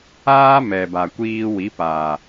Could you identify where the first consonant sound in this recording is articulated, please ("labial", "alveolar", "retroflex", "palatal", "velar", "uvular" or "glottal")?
labial